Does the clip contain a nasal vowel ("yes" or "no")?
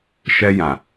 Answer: yes